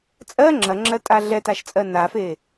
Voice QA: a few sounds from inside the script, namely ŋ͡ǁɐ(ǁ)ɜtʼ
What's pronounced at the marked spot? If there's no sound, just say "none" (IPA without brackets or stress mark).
ŋ͡ǁ